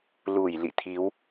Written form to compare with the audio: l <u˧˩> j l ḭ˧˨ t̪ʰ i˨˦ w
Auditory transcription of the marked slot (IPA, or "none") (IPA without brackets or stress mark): u˧˩